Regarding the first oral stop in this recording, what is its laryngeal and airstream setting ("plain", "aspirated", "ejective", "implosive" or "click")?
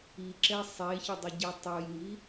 click